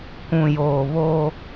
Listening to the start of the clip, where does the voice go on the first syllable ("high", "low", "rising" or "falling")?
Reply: low